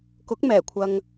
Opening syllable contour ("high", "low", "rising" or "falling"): rising